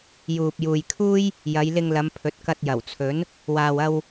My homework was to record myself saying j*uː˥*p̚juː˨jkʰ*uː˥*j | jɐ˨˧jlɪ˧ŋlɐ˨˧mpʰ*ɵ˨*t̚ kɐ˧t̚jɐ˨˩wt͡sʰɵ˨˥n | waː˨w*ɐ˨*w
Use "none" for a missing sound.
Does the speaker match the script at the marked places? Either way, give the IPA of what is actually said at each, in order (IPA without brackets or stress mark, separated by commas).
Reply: uː˨, uː˥, ɵ˨, ɐ˧